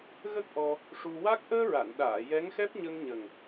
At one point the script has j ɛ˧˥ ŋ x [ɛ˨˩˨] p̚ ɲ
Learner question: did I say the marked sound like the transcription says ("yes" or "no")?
no